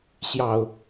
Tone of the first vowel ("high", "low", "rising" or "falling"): low